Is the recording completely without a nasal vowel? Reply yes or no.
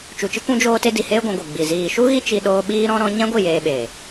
no